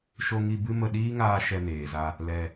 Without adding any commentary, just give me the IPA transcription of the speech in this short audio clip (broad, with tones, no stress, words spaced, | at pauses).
ʃo˧ŋi˧ bɨ˦mə˧ ɗiː˦ŋaː˧ ʃɛ˧neː˨za˧ | lɛ˧